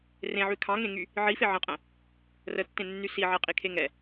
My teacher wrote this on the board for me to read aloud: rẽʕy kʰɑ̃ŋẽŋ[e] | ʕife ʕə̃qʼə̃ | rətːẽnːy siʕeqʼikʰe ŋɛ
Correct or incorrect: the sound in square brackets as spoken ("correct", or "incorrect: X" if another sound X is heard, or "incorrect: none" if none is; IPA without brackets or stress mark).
incorrect: y